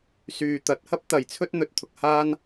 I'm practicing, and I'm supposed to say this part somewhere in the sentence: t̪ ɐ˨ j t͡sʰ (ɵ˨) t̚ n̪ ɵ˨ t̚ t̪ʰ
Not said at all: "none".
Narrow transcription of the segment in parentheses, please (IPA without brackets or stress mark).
ɵ˥